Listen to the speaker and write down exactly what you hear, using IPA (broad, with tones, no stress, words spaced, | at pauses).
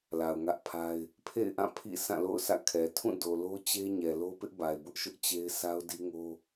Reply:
la˨ʊ̯ŋä˦ʔpʰa˦ɪ̯ | pʰḛ˦˨ɪ̯ʔã˦˨ pʰḭ˦˨ sʰã˦˨lo̰˦˨ʊ̯sä̰˦˨ kʰɛ˨ tʰũ˦˨do˨lo˦ t͡ɕe˦ ɲɛ˨lo˦pɪ˦ʔba˨ɪ̯ bʊ˦ʔʃʊ˦ʔ t͡ɕe˦ɪ̯ sʰa˦ʊ̯di˦ŋo˦